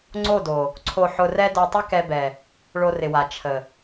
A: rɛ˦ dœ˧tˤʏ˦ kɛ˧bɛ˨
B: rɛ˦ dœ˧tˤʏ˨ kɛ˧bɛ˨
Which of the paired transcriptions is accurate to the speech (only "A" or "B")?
A